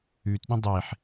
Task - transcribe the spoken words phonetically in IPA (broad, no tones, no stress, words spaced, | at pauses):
ʉt ɗũdˤeħ